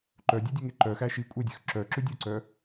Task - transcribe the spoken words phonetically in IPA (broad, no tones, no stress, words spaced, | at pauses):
ǃœdʲedʲøŋe ǃœxæ ʃi kʷʼedʲøx ǁœǁʉ dʲuǀœ